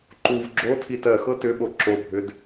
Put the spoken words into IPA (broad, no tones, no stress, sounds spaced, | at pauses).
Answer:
ǃ u v ɡ͡ǁ o tʰ i t ɜ x ɤ t ʏ ɓ o ǁ o bʱ ʏ d